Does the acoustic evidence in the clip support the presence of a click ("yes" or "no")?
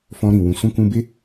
no